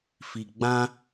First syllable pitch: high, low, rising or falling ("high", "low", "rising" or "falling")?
low